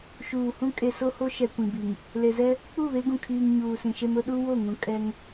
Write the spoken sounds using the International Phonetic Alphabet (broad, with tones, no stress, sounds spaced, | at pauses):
ʃ uː˨ h ũ˦ kʼ e˨ s o˦ h o˦ ʃ ɛ˨ kʷ ĩ˨ b i˨ ŋ | l e˨ z ɛ˦ | k͡p u˦˨ β e˦ ɡ ũ˨ kʰ iː˨ ŋ ɲ uː˨ s ĩ˨ ʃ e˦ m ʊ˦ ɗ u˦ w o˦˨ ŋ ũ˨ kʼ ɛ˦ ŋ